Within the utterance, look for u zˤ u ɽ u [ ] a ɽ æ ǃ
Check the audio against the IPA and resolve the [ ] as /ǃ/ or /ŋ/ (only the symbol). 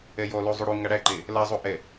ŋ